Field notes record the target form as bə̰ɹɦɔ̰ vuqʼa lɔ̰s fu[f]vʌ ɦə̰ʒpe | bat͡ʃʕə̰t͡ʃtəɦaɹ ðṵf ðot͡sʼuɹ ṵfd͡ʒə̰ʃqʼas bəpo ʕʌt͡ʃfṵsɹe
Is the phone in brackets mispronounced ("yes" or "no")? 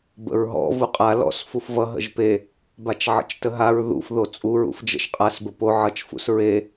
no